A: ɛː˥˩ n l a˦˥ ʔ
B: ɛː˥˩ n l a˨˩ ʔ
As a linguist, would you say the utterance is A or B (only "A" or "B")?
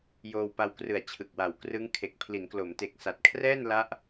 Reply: A